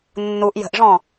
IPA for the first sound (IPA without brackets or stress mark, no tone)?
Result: nː